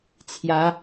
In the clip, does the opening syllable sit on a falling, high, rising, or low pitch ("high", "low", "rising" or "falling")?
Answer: rising